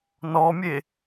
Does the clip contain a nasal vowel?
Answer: no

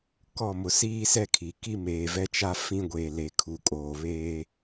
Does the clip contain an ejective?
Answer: yes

